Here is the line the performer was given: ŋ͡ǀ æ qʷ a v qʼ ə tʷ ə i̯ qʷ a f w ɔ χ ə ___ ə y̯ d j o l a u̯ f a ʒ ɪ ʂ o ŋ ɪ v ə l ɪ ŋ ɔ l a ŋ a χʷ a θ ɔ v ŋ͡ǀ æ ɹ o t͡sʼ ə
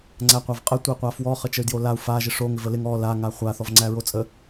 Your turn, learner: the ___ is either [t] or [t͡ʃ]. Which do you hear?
t͡ʃ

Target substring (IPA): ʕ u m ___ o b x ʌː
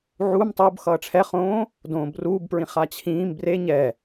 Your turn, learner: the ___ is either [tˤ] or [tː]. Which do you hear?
tˤ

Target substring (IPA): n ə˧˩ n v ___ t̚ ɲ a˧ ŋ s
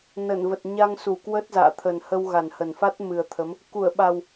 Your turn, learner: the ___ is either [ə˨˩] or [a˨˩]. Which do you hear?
ə˨˩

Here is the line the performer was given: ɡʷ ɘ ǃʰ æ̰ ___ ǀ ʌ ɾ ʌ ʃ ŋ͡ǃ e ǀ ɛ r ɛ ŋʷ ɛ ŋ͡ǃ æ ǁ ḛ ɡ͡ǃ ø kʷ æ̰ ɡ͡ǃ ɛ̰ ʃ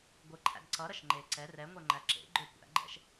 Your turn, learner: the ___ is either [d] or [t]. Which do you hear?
d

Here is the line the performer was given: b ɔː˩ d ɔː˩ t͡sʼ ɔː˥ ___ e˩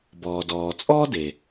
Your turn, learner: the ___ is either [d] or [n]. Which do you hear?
d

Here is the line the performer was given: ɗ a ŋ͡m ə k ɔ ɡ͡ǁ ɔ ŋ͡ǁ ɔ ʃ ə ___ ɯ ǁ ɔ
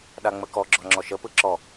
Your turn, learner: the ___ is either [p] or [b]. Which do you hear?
p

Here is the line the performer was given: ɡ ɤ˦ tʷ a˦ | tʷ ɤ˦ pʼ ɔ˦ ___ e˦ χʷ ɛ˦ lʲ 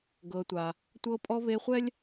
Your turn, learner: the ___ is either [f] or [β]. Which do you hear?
β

